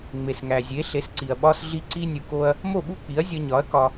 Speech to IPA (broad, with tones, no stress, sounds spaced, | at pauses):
ŋ͡m e˩ s ŋ æ˩ zʲ e˩˥ ɬ e˩˥ s ǀ i˩ ɐ̯ ɓ ɒ˧ s ɮ i˧ ǀ i˥ nʲ u˩ k o˧ ɐ̯ | m o˥˩ ɓ u˥ k͡p i˩˥ ɐ̯ zʲ ɒ˧ ɲ ɒ˩˥ ɐ̯ k ɒ˧